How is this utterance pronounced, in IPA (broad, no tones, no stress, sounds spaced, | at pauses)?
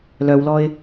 l œ w l ɔ ɪ̯